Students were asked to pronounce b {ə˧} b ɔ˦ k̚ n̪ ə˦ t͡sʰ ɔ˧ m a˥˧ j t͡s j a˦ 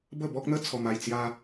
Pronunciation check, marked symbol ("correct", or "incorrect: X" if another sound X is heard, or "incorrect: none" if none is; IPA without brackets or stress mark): incorrect: ə˥˧